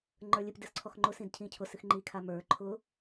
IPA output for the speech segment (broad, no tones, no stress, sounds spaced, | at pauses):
ŋ͡ǃ ə˞ lʲ ɨ p d ɨ s ǀʰ ɔ x ŋ͡ǃ ʊ s ĩ d cʰ ĩ cʰ ʊ s ɨ x ŋ͡ǃ i kʰ a m ə˞ ǃʰ ʊ